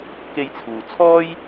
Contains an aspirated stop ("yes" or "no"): yes